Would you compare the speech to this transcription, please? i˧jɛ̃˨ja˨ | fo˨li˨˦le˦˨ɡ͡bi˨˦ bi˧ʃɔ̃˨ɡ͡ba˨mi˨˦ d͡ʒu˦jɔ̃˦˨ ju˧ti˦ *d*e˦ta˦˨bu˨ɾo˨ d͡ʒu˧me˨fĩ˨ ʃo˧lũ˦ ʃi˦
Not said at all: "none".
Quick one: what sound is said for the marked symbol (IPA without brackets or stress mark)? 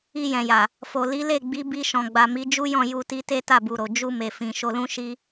t